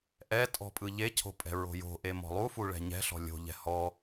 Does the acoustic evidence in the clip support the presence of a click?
no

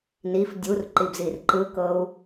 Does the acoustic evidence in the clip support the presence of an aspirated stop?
no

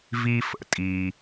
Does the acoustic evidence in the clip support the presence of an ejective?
yes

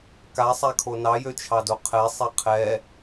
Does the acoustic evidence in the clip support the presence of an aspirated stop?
yes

